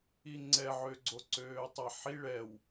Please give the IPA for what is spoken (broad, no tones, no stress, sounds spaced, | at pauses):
i ŋ͡ǀ ɛ ʕ ø ɡ͡ǀ o ǀ øː tˤ ɛ ħ i ɭ ɛ w